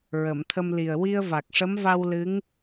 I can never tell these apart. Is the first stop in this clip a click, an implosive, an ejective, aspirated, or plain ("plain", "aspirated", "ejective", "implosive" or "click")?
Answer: aspirated